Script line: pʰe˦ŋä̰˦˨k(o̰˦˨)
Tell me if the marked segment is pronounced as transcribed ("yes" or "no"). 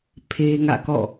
no